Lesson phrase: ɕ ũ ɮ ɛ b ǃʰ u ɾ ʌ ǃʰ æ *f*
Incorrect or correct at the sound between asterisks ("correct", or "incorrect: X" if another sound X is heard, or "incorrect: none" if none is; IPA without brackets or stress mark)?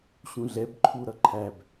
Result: incorrect: b